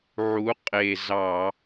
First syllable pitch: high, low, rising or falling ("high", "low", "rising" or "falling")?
rising